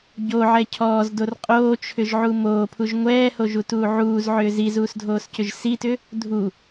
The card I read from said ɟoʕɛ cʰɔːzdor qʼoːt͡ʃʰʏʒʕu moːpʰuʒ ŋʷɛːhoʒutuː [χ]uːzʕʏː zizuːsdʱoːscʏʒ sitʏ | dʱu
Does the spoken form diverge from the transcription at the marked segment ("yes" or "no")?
yes